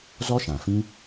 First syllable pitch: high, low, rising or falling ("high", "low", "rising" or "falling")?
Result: high